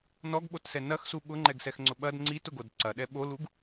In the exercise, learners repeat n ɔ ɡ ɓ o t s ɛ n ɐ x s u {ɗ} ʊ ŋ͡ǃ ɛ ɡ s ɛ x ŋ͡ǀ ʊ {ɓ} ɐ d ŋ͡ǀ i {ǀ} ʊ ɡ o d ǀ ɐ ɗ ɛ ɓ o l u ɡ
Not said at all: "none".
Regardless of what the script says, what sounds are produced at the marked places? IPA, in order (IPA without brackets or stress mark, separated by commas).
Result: ɓ, ɓ, t